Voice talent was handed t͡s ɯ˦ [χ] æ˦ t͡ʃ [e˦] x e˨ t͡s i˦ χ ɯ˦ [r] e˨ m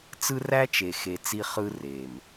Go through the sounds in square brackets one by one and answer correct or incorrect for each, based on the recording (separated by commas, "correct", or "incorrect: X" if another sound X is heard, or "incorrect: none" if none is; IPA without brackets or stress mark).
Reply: incorrect: r, incorrect: e˨, correct